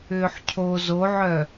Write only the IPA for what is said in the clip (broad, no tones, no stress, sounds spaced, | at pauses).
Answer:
ʏː ħ cʰ o z o ʕ œ